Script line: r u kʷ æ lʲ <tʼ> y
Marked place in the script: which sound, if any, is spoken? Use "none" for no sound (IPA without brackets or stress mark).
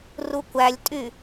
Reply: tʼ